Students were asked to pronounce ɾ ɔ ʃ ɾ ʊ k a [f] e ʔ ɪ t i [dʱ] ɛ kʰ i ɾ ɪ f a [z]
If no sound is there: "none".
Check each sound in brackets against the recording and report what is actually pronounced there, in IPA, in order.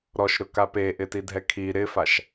p, dʱ, ʃ

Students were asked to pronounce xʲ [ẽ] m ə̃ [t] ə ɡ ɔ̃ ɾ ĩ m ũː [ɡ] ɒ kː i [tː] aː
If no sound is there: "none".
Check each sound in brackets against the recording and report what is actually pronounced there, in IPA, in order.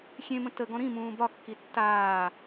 ẽ, t, b, tː

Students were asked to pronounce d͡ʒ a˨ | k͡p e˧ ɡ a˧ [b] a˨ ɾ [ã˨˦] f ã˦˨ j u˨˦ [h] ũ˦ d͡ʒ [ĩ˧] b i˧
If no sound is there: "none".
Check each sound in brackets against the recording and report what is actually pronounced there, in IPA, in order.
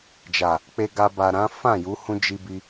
b, ã˨˦, h, i˧

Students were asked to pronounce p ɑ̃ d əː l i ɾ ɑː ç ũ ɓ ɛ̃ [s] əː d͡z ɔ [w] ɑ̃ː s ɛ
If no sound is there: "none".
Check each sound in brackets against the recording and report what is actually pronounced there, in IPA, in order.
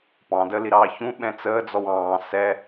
t͡s, w

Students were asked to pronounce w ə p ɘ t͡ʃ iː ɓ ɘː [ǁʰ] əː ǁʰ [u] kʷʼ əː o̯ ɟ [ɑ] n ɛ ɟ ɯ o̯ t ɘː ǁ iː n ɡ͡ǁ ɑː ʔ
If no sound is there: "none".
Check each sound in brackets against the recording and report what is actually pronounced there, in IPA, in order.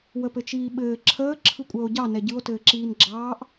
ǁʰ, ɯ, ɑ

